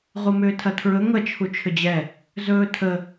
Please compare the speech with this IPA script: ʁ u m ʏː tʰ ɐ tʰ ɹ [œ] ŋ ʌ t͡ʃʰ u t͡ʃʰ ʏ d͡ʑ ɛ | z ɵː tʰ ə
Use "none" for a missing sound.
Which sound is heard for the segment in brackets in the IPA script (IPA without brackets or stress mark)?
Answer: ɵ